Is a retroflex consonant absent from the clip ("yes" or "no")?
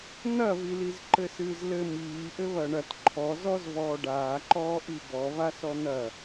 no